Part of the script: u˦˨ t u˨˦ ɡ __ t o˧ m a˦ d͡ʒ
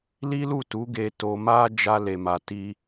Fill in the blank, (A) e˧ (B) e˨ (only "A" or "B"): A